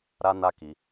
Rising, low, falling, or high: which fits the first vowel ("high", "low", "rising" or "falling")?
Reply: high